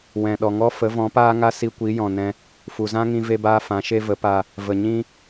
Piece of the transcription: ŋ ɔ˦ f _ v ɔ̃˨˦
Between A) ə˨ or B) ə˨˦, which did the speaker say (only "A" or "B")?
B